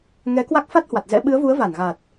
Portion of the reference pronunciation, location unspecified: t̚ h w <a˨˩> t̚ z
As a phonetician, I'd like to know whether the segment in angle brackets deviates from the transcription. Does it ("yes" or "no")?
no